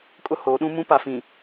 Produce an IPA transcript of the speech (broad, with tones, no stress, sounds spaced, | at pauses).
kʼ ʊ˦ h oː˨˦ ɗ ũ˦ m ũ˦ p a˨ f ĩ˨